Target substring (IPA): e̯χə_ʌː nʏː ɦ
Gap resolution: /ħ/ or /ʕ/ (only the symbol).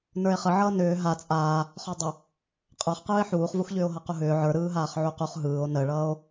ʕ